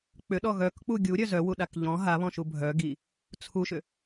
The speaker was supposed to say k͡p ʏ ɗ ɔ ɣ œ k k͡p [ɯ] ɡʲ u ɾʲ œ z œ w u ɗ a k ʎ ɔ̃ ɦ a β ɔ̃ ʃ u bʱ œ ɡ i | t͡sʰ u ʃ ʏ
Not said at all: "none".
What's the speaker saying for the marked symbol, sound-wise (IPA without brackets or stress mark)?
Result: u